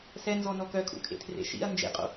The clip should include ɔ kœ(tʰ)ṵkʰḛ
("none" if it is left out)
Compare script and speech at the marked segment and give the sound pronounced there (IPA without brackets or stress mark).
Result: kʰ